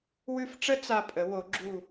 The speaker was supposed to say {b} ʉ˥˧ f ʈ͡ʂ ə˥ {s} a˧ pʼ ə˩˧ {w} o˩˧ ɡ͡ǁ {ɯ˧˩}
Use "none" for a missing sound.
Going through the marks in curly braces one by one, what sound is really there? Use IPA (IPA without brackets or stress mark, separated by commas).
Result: w, t͡s, w, u˧˩